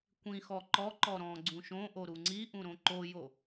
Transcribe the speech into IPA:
kʷ ĩ x ɔ ǃ ɔ ǃ ɔ ɾ ɔ̃ ɡ͡ǀ ũ ʃ õ ʔ o ɾ u ŋ͡ǀ i ʔ ũ ɾ õ ǃ o j o

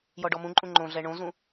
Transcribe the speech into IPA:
j ɔ ɖ ɔ m ũ ǃʼ ũ ŋ͡ǃ õ ɮ ɛ ɳ õ z ũ

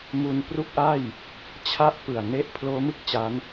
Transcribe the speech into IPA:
m u˧ n p r u˥˩ k̚ ʔ a˥˩ j | t͡ɕʰ a˥˩ ʔ p ɯ˨˩ a̯ n e˥˩ ʔ pʰ l oː˦˥ m ɯ˥˩ k̚ t͡ɕ a˦˥ n

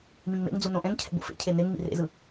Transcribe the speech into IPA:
m ĩ ŋ m ḛ ŋ d͡z u n õ ʔ ɛ̃ ŋ cʰ ɛ̰ b o̰ f ḛ cʰ e n̪ e ŋ m ḭ r ḛ z ɯ

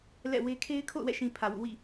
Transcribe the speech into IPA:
l ɛ̰˦˨ w e˦ kʰ e˦ ɪ̯ kʰ o̰˦˨ ʊ̯ w ɛ̰˦˨ ʃ ĩ˨ pʰ ä˨ w ṵ˦˨ w ḭ˦˨

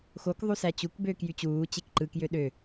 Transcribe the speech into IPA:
x o k ðˤ u s æ t͡ɕ u k b øː k j y t͡ɕ uː t͡ɕ e k ǃ ɯ k j ø ɗ ø

